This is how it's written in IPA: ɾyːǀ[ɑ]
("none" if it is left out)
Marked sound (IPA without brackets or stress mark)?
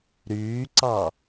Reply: ɑ